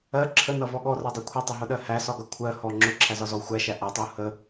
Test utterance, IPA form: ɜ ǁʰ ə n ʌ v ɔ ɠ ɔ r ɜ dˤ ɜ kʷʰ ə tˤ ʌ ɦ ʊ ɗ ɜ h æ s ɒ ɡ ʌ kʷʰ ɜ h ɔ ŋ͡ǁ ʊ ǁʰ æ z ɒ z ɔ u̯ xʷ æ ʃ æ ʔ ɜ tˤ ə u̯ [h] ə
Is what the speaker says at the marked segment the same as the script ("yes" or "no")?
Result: yes